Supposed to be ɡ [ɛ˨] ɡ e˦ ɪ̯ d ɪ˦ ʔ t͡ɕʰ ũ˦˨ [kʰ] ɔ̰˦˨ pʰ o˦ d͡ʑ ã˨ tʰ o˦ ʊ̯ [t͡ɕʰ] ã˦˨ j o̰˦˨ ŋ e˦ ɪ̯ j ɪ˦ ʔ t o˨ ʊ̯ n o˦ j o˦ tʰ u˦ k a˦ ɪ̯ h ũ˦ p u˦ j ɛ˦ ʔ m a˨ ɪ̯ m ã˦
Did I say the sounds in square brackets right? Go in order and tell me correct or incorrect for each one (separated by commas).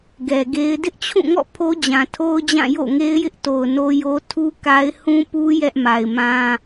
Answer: correct, incorrect, incorrect